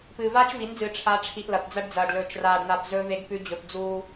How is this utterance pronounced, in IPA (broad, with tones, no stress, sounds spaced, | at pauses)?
p ɨː˨ v aː˦ t͡ʃ v i˨˦ n d͡z ɨː˨ ʈ͡ʂʰ a˨˦ ʈ͡ʂʰ i˨ ʔ l ɐ˨ p d͡z ɐ˦ ɖ d͡z ɐː˨ ɖ l ɵː˨ t͡ʃ r aː˨ ɖ n̪ a˨ p z ɵː˦ v e˦ ɡ p ʉ˦ d͡ʑ ɵ˨ p d͡z uː˦